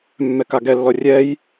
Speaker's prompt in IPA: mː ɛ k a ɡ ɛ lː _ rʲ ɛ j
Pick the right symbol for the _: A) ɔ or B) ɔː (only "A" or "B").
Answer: A